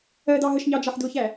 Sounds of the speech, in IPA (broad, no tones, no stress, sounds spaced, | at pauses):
ɜ d ɑ ɦ ə ʃ ɲ ɑ d͡ʒ ɑ ħ d ʊ ç æ